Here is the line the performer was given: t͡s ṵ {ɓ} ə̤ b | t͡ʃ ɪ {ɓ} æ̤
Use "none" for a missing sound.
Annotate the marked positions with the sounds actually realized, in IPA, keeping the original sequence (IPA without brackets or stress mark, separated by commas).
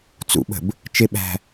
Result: ɓ, ɓ